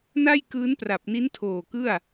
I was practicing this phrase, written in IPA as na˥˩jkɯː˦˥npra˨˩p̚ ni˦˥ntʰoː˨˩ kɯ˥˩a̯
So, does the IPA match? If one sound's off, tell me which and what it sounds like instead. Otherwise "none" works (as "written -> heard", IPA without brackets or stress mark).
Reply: none